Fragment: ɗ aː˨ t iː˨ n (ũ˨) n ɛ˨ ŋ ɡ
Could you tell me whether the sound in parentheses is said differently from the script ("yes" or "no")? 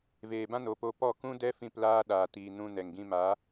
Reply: yes